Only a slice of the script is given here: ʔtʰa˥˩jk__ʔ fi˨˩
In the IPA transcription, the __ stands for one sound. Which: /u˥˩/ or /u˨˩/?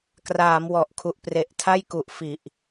u˨˩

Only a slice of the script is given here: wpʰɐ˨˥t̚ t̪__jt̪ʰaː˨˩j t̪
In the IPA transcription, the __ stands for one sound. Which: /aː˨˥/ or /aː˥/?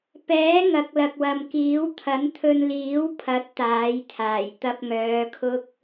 aː˨˥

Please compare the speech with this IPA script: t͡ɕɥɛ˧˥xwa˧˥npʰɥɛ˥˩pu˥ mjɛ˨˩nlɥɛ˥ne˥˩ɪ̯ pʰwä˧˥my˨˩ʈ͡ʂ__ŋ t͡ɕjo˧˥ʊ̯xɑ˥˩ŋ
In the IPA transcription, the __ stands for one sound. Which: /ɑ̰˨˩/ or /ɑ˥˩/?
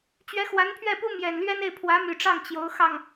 ɑ˥˩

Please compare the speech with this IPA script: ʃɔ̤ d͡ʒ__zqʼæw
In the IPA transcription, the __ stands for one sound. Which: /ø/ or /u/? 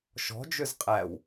ø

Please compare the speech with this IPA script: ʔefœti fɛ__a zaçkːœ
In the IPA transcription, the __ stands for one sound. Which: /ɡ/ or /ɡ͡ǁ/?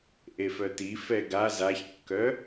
ɡ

